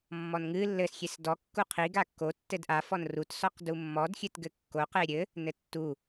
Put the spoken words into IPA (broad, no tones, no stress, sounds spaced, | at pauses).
mː ɔ n ŋ ɨ lː ɘ s xʲ e s d ɔ kː u qʰ i ɡ a kː o tː ɘ d ʔ a f ɔ n r u t s ɔ q d u mː ɔ d xʲ ɨ t ɡ ɘ kː o q e ɾʲ ɘ | n ɘ tː u